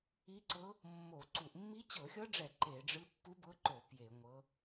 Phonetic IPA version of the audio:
i˧˥ ǀ ɤ˧˥ | mː o˧˩˧ ǀ u˧˩˧ ʔ mː i˧˥ t͡ɕ ɤ˧˩˧ xʲ ɤ˧˥ ɖ͡ʐ ɛ˧˩˧ ǃ e˧˩˧ ɖ͡ʐ ɯ˧˥ pː u˧˥ b ɤ˧˥ ǃ o˧˩˧ p j e˧˩˧ ŋʷ ɤ˧˥

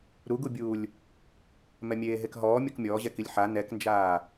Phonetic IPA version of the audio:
ɾ u ɡ u bʲ uː lʲ | m ɛ mʲ eː ɦ e k ɦ ɔː mʲ o k mʲ ɔː ʑ ɛ k i lʲ ħ a n ɛ k n d͡ʒ aː

